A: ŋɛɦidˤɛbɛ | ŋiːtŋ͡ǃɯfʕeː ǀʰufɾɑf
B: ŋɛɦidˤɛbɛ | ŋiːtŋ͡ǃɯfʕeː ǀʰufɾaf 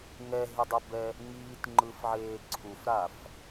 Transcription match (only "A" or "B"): B